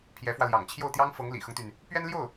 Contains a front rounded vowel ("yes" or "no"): yes